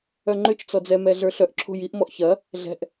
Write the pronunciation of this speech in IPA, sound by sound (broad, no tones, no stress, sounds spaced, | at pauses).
œ ŋ͡ǃ ʏ t͡ʃ t͡s ɔ d͡z ɛ m ɛ ɮ ə˞ ɬ œ ʔ ǁʰ o̤ j i ʔ m ɔ ʔ ç ɐ | ɮ ɛ̤ ʔ